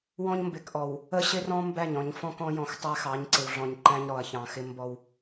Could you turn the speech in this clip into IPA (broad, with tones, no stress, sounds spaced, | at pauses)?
w ɔ̃˦ ɲ m b ɪ˨ k ʔ ɔ˨ w | ə˦ ɕ ɪ˦ r ɔ̃˦ m b æ˦˨ ɲ ɔ̃˨ ɲ f ɔ̃˦ k ɔ̃˨˦ j ɔ̃˨ x tˤ æ˦ x ɑ˨˦ ɲ ǀ ɪ˨ w ɮ ɔ̃˨ ɲ ǃ æ̃˦ ɲ ɾ ɔ˨ ɐ̯ ç ɑ̃˨ x ɪ˦ m b ɔ˦ w